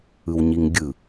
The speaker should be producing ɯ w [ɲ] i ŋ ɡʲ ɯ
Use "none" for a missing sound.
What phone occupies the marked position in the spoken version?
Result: ɲ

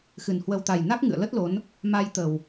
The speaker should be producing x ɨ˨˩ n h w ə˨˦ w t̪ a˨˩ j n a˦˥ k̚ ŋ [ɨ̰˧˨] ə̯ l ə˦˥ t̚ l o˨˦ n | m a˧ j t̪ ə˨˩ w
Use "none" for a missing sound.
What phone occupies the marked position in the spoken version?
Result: ɨ̰˧˨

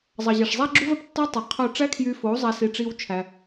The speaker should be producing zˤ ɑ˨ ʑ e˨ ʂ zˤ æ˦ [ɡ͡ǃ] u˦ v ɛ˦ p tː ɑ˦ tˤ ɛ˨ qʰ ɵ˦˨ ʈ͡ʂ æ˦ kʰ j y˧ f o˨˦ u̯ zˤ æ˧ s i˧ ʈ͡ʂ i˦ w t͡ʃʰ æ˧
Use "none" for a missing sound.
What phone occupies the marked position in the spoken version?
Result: ɡ͡ǁ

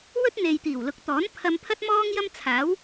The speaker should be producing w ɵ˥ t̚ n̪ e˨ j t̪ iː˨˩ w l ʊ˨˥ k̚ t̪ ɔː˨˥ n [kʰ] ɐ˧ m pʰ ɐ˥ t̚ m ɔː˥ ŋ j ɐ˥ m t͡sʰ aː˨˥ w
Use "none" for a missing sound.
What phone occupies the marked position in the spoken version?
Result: pʰ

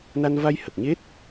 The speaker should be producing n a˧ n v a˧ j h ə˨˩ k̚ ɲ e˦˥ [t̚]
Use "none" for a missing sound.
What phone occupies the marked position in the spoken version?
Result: t̚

